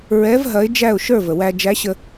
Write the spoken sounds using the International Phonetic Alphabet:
ɹ ɛ˧˥ v ɦ ɐ˧˥ ɪ̯ d͡ʒ æ˥˨ ʊ̯ ʃ ə˞˥˨ v ə˩ w æ˧ d͡ʒ æ˧˥ ɕ ə˧

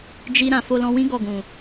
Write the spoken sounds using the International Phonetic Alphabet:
d͡ʒ i˧ ɾ ã˨ f o˧ l ɔ̃˧ w ĩ˦ ɡ ɔ˦˨ ɡ ũ˨

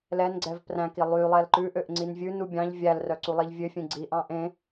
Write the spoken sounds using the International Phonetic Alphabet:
l ɛ n ɡ͡ǀ ɛ v p r æ̃ k i lˠ y lˠ ɛ l ǃ ʉ ʔ ø ʔ ŋ͡ǀ i n vʲ ʉ n u bʲ ɑ̃ ʎ vʲ æ l r œ ǀ u lˠ i ʎ vʲ ø fʲ ẽ ɡ͡ǀ i ʔ ɑ̃ ʔ ẽ

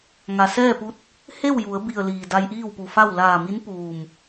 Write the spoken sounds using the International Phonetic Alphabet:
ŋ a˩ s ɛː˥˨ p u˧˥ t̚ | h e˥˨ w j u˩˧ ə̯ b i˧˩ ə̯ l iː˩ d a˧ j ʔ iː˥˨ w p u˧˩ f a˥˨ w l aː˧˩ m i˧˥ n p uː˧˩ m

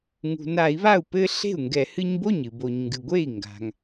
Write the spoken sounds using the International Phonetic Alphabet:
ŋ ṳ˩ n a˧˩˧ i̯ β a˥˩ u̯ p ɘ˦ ɬ e̤˥˩ u̯ ŋ ɡ ɛ˧˩˧ h ɨ˦ ɲ b o˥˩ ɲ ɨ˩ b o˩ ɲ ŋ ɡ ɨ˩ ɡʷ e˥˩ i̯ ŋ ɡ a̤˩ ŋ

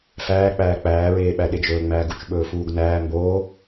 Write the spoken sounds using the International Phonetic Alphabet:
f æː k͡p æː k͡p æː ɹ eː ɓ æ ɗ e d͡ʒ ɵː ŋ͡m æː ɡ u t͡ʃ ɓ ɵː f uː ɡ n æː m b oː

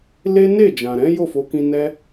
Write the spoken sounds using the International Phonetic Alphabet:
l e˦ n e˦˨ d͡ʒ ã˨ ɾ ɛ̃˨˦ j o˦˨ f o˨˦ k ĩ˧ n ɛ˧

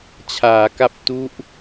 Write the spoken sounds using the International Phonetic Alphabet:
t͡ɕʰ aː˩˦ k a˦˥ p̚ t u˦˥ ʔ

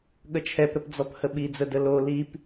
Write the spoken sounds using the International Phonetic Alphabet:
ɠ ə t͡ʃʰ ɛ p ɾ ə p d͡z ɔ p h ə ɓ i d͡z ə d ə l o l i p

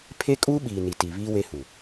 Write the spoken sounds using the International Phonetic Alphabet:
pʰ e˦ kʼ uː˦ ɓ iː˨ n i˨ t iː˨ β iː˦ w e˦ h u˨

